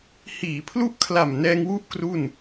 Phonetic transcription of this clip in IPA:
hiː˩˦pʰlu˦˥ʔkʰla˨˩m nɛː˧ŋwu˦˥ʔ kru˥˩n

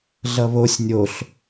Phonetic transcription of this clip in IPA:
ɮʌβosʲ nʲoɬ

